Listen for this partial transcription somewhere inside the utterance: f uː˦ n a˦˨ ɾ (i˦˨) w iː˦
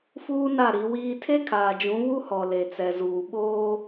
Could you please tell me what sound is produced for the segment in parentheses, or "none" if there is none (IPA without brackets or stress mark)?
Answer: i˨˦